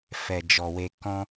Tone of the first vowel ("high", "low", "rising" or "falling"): low